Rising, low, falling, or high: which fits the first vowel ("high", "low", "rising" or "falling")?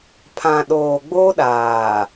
low